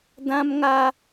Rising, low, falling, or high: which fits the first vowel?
high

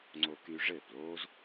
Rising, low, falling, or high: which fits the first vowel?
high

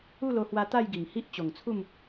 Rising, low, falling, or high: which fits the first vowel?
falling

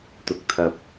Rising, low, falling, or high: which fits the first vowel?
rising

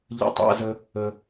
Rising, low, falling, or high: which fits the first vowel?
high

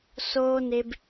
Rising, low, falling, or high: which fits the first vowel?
high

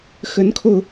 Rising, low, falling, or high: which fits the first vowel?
rising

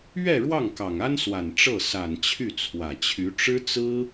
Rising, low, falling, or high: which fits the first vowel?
falling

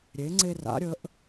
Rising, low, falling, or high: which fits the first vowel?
rising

